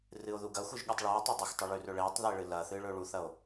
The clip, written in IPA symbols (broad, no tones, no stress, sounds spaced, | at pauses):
r ɨ o̯ ð u ɡ ɐ xʷ ɨ ʒ ɠ ʉ tˤ ɭ u e̯ tˤ ɨ dˤ ɐ x tˤ ɨ ɭ ʉ r ɵ ɭ e tˤ ð e ɭ ɨ l ɐ θ ɨ ɭ ɵ ɭ u θ ɐ o̯